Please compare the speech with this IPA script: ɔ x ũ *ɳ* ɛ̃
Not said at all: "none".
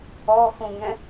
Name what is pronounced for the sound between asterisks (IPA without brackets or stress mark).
ŋ